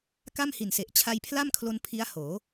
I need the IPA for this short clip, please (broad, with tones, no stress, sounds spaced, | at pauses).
k a˥˩ m h i˨˩ n s e˨˩ ʔ t͡ɕʰ a˧ j pʰ l a˥˩ m kʰ l o˧ n pʰ i˦˥ a̯ h oː˩˦